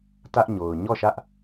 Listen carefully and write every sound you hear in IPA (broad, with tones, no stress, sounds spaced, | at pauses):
t ä˦ ʔ ɲ o˨ ʊ̯ ɲ ɔ˦˨ ʃ ä˦ ʔ